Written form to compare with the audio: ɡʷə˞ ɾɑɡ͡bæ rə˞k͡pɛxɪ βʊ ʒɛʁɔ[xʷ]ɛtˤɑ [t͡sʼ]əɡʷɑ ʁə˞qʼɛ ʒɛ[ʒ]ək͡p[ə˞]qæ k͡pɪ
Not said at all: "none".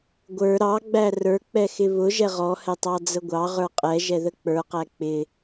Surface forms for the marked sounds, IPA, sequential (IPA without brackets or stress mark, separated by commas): h, d͡z, ð, ə˞